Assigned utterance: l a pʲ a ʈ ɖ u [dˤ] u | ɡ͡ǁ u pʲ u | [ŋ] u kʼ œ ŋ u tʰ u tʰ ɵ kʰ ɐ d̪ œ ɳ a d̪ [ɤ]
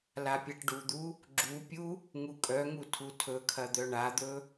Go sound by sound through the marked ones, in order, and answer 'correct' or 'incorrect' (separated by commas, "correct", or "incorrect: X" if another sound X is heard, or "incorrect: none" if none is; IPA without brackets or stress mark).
incorrect: d̪, correct, incorrect: ɵ